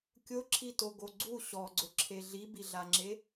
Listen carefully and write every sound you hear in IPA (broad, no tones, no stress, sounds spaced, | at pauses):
kʲ ʊ ǁʰ i t o ɡ o ɡ͡ǀ u ɕ ɔ ɡ͡ǀ ʊ ǁʰ e ɮ i b i ɮ a ŋ͡ǁ e